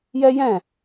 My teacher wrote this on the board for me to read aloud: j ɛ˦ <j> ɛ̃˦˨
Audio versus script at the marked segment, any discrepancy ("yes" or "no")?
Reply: no